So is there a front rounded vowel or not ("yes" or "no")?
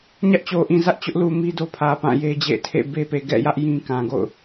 no